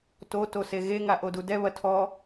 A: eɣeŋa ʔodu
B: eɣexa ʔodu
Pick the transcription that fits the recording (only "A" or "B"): A